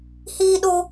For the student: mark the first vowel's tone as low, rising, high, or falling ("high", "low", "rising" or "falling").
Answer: high